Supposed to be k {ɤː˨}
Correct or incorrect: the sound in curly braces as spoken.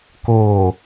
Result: incorrect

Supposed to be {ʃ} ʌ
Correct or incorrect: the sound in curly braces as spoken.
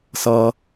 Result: incorrect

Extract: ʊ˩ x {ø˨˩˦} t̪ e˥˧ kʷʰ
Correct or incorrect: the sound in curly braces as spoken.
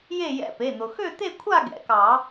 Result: incorrect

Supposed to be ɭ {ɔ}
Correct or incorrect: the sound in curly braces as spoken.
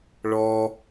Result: correct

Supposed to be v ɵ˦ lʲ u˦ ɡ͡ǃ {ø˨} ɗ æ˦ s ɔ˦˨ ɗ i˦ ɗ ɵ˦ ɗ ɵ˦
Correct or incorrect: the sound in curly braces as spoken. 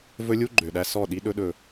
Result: correct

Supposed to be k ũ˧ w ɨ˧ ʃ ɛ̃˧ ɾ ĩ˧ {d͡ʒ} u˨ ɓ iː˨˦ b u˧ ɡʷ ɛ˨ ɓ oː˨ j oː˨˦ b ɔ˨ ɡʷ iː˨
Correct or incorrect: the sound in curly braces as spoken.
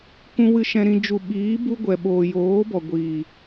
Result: correct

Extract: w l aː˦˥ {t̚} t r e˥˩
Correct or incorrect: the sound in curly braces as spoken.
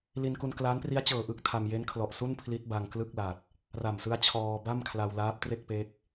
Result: incorrect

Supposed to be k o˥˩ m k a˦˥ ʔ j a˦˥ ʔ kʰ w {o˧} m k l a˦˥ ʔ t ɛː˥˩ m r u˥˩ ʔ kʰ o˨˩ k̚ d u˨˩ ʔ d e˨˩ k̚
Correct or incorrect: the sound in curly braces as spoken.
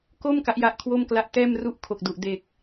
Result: incorrect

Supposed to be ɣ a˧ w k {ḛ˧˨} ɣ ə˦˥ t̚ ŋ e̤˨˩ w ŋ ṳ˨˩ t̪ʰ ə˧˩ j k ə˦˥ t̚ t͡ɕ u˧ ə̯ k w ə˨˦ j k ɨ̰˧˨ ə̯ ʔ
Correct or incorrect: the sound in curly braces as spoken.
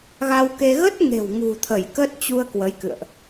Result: incorrect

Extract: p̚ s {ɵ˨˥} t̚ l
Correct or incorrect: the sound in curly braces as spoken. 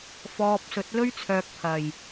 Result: correct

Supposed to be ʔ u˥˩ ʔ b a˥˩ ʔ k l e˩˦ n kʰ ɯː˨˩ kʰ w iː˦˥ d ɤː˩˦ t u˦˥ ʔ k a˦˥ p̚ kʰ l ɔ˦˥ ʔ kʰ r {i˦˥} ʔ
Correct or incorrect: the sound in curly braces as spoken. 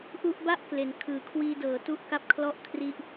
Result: correct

